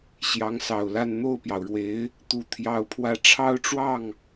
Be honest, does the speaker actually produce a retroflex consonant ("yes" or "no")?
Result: yes